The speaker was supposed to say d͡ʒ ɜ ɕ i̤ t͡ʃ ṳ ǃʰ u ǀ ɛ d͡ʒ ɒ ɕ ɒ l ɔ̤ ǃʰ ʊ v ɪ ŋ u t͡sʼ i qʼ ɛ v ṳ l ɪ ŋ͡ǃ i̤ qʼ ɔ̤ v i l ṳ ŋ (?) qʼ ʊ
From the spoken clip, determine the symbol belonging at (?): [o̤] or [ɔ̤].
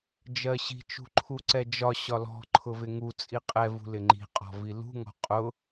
ɔ̤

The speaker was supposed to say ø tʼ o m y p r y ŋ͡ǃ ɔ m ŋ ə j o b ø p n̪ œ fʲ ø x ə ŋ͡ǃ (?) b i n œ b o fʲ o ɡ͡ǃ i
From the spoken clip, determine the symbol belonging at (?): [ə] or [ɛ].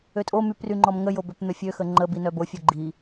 ə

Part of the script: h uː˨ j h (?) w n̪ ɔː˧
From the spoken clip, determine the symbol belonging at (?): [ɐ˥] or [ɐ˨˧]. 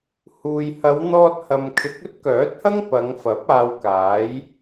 ɐ˨˧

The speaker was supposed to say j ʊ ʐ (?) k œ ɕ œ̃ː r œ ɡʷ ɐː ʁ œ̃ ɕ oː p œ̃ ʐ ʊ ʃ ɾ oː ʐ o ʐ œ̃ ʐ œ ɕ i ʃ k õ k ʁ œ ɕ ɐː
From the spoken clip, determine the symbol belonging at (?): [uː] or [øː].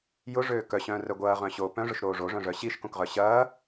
øː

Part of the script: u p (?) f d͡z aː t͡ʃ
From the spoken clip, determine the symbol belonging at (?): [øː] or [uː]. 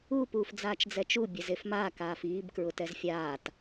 uː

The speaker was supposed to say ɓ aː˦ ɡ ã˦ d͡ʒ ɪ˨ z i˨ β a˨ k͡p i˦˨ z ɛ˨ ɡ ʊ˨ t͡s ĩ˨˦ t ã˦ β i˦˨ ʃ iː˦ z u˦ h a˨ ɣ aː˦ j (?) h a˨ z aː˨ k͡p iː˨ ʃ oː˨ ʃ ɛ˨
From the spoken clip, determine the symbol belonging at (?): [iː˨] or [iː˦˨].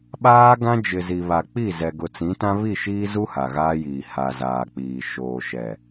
iː˨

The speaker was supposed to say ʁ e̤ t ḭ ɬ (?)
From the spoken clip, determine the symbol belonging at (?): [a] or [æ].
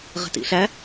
æ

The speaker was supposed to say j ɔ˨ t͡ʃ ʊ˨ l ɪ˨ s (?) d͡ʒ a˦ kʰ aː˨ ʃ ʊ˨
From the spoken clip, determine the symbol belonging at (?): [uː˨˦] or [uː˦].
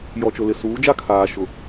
uː˨˦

